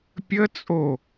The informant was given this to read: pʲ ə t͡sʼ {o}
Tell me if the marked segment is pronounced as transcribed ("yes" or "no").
yes